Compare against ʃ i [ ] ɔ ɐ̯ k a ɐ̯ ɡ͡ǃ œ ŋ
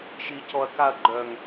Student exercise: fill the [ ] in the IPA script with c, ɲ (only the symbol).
c